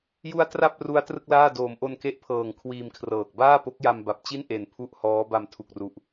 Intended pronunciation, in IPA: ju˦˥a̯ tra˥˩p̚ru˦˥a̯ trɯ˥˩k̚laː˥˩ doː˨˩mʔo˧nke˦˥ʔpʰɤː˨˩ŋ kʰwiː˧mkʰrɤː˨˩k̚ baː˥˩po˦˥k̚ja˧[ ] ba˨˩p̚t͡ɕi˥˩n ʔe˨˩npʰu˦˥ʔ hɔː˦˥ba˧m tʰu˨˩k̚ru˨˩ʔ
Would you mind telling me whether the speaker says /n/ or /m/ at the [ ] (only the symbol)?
m